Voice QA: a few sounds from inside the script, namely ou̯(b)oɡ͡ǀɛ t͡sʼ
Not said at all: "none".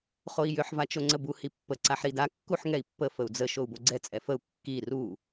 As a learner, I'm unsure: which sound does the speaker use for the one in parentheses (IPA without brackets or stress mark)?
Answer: b